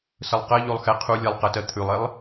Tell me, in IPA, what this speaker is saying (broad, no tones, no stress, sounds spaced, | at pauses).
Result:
s ə lˠ q ɜ ʎ o lˠ x ɛ qʰ u lʲ ɛ lˠ q ə t ɜ t̪ʰ ʉ lˠ e lˠ